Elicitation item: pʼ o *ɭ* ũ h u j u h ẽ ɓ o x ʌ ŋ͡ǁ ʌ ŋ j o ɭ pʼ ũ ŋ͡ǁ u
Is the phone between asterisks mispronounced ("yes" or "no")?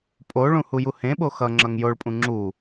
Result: no